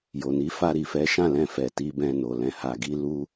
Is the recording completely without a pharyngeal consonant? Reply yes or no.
yes